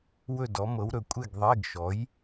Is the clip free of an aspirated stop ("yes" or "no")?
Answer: yes